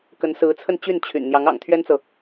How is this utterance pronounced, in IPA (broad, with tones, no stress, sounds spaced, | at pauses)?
k ə˧˥ n s ɹ̩˧˥ t͡sʰ ə˥˧ n t͡ɕ y˥˩ n t͡ɕʰ y̰˨˩ n n̪ j ɑ˧˥ ŋ ɑ̰˨˩ ŋ t̪ʰ ɥ ɛ˥ n t͡s ɤ˨